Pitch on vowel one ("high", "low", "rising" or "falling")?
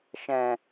low